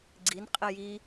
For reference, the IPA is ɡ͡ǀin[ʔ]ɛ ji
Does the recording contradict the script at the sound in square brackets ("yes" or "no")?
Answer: yes